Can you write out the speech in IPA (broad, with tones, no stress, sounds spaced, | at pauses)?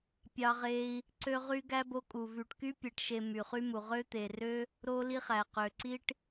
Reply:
pʲ ɑ˥ ʁ e˥ i̯ | ǀ ø˥ ʁ y˥ ɡ æ˥ b o˥ kʼ u˧ v y˧ ʈ k y˥ pʲ e˧ ʈ ʃ e˧ m y˧ χ y˥ m u˧ ʁ ø˥ t̪ e˧ r ø˥ | ɾ o˥ l i˥ χ æ˧ q ø˧ ǀ i˥ ʈ